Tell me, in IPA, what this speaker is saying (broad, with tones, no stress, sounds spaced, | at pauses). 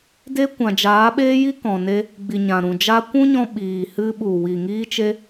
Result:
d e˦ kʷ ã˨ d͡ʒ aː˨˦ ɓ eː˦ j i˦ k ɔ̃˨ n e˧ | ɡ͡b i˨ ɲ ã˨ ɾ ũ˨ d͡ʒ a˧ kʷ ũ˦ ɲ ɔ̃˧ ɓ iː˨ h ɨ˧ ɓ u˨ w i˨ ŋ iː˧ t͡ʃ e˧